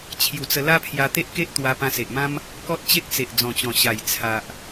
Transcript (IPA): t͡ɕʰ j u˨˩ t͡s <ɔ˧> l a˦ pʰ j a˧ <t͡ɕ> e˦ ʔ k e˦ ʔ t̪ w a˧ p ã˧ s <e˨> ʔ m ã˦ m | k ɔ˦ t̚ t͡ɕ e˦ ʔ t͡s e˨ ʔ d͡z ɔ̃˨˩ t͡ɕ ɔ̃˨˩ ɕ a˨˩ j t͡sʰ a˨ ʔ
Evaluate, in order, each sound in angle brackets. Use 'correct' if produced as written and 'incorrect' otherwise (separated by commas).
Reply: incorrect, incorrect, correct